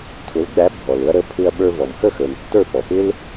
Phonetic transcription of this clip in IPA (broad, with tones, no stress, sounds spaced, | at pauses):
tʰ ʊ˩˥ l ɡ͡b æ˩˥ bʱ ɔ˩ l ʊ˧ ɐ̯ ɾ ə˩˥ pʰ ɪ˧ ɐ̯ ɓ ə˞˧ v ɔ˩ m x ə˥˩ x ə˞˩ n tː ə˞˥˩ p ɔ˩ p ɪ˥ l